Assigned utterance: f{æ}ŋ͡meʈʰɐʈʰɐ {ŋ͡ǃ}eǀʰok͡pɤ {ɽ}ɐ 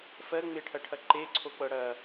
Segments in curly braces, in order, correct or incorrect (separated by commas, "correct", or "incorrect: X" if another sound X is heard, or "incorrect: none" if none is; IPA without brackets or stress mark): incorrect: ɜ, incorrect: ǃ, correct